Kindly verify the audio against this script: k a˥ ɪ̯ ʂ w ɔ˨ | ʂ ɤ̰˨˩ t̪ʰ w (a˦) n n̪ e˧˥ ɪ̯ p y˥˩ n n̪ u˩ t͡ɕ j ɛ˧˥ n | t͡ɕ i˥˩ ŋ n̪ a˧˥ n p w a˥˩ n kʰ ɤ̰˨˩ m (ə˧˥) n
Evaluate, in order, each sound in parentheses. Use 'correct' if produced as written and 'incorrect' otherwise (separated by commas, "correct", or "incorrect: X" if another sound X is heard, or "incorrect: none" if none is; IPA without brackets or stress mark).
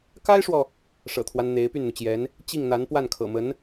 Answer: correct, correct